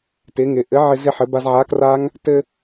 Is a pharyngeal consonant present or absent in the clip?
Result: present